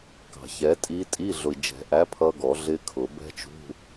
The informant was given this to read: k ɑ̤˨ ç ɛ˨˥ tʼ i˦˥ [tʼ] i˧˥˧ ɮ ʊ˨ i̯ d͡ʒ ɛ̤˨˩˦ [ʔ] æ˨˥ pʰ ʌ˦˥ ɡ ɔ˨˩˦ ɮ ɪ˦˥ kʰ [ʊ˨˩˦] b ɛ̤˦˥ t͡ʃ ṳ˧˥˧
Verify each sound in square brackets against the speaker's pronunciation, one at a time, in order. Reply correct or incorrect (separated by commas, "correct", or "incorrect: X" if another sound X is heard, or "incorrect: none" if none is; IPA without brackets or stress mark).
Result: correct, correct, correct